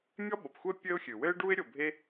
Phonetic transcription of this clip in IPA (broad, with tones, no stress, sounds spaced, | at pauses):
mʲ ɔ˥ ɓ o˩ p xʷ ɛ˥ pʲ ɘ˥ ʊ̯ xʲ ɨ˩ w ɘ˥ ɪ̯ ɖ u˥ ɪ̯ ɾʲ o˩ bʱ e˥